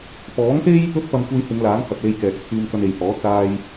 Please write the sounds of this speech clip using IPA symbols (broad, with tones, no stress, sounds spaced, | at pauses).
p ɔː˨˥ ŋ s e˥ j | ɵ˥ t̚ p ɐ˧ m kʷ e˧ j h ɪ˨˧ ŋ l aː˨˥ ŋ h ɐ˨ p̚ l e˧ j k ɛː˨ k̚ t͡sʰ yː˧ ŋ k ɐ˧ n e˨ j h ɔː˨˥ t͡s aː˧ j